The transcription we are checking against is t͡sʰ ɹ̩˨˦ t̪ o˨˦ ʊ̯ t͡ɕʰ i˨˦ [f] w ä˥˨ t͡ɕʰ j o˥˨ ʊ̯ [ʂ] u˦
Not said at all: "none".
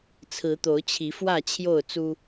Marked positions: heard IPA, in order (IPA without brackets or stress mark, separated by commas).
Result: f, t͡s